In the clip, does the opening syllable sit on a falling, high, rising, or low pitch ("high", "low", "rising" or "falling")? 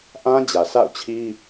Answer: high